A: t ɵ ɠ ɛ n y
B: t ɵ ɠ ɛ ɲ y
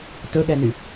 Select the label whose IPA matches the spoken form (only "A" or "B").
A